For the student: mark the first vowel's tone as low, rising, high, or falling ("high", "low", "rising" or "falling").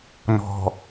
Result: low